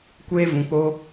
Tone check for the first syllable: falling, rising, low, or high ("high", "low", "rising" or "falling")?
high